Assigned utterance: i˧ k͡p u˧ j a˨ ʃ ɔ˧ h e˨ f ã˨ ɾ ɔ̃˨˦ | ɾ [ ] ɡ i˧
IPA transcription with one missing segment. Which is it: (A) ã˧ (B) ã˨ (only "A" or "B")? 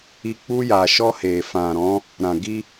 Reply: B